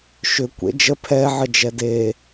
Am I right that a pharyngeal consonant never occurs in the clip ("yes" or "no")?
no